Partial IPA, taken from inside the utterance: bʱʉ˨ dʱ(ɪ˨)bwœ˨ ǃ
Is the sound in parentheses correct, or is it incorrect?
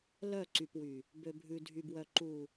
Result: incorrect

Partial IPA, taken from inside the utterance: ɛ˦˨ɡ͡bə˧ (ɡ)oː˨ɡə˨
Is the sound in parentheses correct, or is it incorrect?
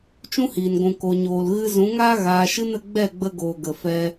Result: correct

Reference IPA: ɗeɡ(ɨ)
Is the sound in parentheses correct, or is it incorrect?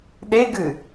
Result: correct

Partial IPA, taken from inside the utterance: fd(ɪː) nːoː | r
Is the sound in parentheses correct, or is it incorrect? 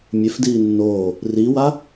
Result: incorrect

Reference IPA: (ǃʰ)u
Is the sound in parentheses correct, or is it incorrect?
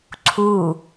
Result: incorrect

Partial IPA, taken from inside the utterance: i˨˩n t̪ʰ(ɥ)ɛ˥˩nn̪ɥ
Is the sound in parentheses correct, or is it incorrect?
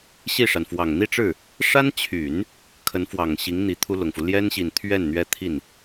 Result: correct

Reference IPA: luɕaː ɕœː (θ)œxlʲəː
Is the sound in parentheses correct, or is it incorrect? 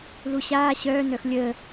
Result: incorrect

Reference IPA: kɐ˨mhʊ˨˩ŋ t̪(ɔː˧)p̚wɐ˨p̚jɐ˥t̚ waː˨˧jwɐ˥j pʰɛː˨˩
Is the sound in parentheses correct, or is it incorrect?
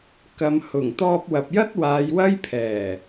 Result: correct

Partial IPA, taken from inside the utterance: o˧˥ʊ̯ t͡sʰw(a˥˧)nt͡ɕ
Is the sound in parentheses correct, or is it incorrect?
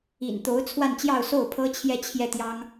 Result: correct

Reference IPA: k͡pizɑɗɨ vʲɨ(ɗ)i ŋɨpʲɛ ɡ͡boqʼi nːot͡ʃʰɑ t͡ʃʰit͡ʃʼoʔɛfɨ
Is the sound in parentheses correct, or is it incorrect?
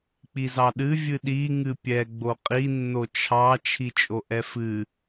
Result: correct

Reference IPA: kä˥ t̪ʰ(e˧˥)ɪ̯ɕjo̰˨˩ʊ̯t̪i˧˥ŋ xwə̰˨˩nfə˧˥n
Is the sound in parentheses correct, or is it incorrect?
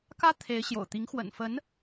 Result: correct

